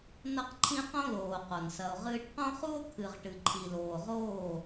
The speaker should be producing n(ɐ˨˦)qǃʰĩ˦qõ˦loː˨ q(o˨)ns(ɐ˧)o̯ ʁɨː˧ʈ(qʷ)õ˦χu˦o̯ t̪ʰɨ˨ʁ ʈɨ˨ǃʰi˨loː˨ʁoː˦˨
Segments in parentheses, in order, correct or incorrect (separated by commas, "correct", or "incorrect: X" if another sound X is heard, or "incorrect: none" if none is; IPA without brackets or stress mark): incorrect: ɐ˦, correct, correct, incorrect: q